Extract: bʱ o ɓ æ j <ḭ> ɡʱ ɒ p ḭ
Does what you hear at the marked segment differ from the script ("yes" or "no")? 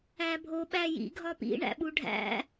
no